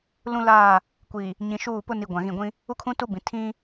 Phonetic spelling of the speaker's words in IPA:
l ũ˦ l aː˦˨ | kʷ i˨ | ɲ ĩ˨ ʃ uː˦˨ p ʊ˦ n i˨ ɡʷ ã˨ ɣ ĩ˦˨ ɡʷ ĩ˦ | u˦ kʰ ũ˦ t u˦ b ĩ˨ tʰ ĩ˦

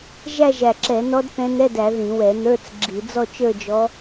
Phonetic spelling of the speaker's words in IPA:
ʒ æ˥˧ ʒ æ˧˩ ǁ ɛ˧˩˧ n ɔ˧˥ d θ ɛ̃˧˥ n ɛ˧˥˧ d æ˧˩˧ ð ĩ˧˩˧ w ɛ˧˩˧ n ə˞˧˥˧ t͡s ɡ͡ǁ i˧˩˧ d͡z ɔ˥˧ t͡ʃ ə˞˥˧ d͡ʒ ɔ˧˥

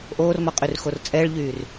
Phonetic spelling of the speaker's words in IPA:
ʔ oː r m ɔ qʼ y r x o r t͡sʼ ɛ ɭ ʎ yː r

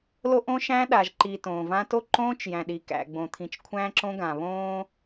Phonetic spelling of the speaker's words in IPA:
l o˦ ʔ õ˦ ʃ æ̃˦ ɗ a˨ ʒ ǃ i˨ t õː˨ v ã˦ t o˦ ǃ õː˦ t͡ʃ j æ̃˨ ɗ i˨ k æ̰˨ ɡ͡b õ˨ t̪ʰ ĩ˨ t͡ʃ kʷʰ æ̃ː˦ ǁ õ˦ ɡ ã˨ β õː˦

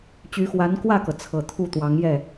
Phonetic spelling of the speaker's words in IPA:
t͡ɕ y˧˥ x w a˧˥ n k w ä˥˩ k ɤ˩ t͡sʰ ɤ˨˩ t̪ʰ u˥˩ t̪ w ɑ˧˥ ŋ j ɛ˥˩

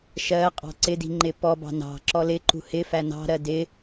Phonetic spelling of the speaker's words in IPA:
ʃ ɜ qʼ ɑ̤ ǀ ɪ d i̤ ŋ͡ǃ ɪ p ɔ b ɑ̤ n ɑ̤ ǁ ɔ l ɪ ǃ ṳ h ɪ f æ n ɑ̤ ɾ ɜ d ɪ

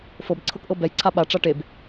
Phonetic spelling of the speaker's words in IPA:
f ɤ b ǀʰ ɤ k ʔ ɤ b ɛ j ǀʰ a ɓ a ʈ͡ʂ a ʈ e b

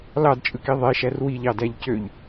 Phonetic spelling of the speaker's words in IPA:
l ɑ d t͡ʃʼ ɯ k i ðˤ e ʃ æ r w i ʎ ɑ d æ ʎ c ø ʎ

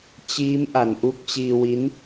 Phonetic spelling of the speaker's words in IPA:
t͡ɕ iː˦˥ m ʔ a˨˩ n ʔ u˥˩ k̚ t͡ɕ iː˧ w i˦˥ n

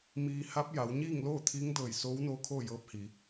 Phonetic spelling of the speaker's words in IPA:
m iː˧ h a˧˥ p̚ j a˩˧ w ɲ iː˥˨ ŋ l oː˥˨ t̪ʰ iː˧˥ ŋ d ɤː˧˩ j s oː˧˥ w n oː˧˥ kʰ oː˥˨ j ɤː˧˥ p̚ h iː˩˧

